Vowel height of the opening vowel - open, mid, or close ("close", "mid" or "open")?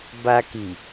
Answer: open